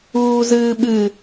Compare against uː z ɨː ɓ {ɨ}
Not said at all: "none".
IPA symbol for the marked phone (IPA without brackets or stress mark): ɨ